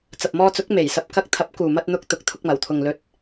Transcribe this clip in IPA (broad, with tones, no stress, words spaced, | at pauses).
t͡sɐ˨p̚mɔː˧t͡sʊ˨˥k̚ me˨˩jsɐ˧p̚ kɐ˧k̚t̪ʰɐ˨˥p̚ kuː˨mɐ˧t̚n̪ʊ˧k̚ t̪ʊ˨˥k̚t̪ʰʊ˧k̚mɐ˨˩w t̪ʰʊ˨ŋlɵ˨˥t̚